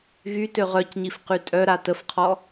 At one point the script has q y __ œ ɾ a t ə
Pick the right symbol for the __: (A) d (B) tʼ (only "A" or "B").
B